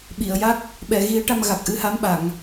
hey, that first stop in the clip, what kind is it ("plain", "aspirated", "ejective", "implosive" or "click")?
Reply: implosive